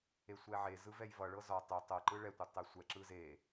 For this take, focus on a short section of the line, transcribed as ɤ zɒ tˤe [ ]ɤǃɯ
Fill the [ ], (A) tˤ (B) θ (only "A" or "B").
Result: A